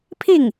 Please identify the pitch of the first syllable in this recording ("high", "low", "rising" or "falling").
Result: falling